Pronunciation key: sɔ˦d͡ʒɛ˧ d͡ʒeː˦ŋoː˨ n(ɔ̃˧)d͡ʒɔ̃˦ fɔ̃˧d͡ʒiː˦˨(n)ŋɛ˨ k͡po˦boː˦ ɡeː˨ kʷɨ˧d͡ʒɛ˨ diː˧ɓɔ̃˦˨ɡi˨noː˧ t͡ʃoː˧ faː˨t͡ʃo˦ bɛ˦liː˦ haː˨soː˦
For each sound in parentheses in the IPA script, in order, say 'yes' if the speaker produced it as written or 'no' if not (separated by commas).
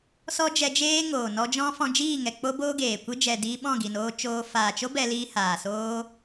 no, no